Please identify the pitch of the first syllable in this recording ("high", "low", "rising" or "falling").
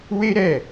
high